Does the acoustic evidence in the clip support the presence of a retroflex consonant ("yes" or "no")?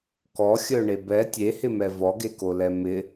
yes